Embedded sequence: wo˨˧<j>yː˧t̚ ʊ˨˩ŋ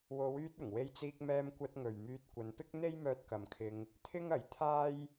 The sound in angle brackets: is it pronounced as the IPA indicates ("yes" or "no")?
no